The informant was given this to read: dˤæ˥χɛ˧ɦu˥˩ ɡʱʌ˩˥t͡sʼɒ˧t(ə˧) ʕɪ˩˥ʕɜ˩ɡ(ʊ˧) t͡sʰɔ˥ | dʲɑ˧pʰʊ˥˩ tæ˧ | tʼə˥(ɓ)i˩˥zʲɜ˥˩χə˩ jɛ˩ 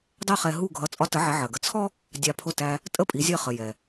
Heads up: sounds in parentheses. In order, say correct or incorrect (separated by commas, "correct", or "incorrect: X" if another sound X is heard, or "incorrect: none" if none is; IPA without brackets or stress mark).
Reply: incorrect: ə˩˥, incorrect: ə˧, incorrect: pʼ